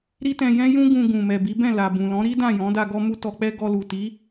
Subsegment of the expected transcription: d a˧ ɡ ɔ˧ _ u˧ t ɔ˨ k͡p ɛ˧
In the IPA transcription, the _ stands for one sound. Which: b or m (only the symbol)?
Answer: m